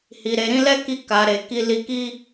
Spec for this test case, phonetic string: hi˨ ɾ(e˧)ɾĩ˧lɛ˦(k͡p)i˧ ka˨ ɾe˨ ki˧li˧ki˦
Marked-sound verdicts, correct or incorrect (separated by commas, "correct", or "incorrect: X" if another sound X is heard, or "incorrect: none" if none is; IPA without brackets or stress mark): incorrect: e˨, incorrect: k